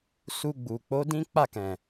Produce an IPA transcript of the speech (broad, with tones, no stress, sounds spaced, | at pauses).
s u˧ ɡ͡b u˨ k͡p o˨˦ d ĩ˦ k͡p a˦˨ k ɛ̃˨